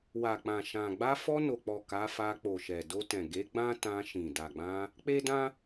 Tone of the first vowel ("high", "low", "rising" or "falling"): low